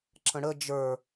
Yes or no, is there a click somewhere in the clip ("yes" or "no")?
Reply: yes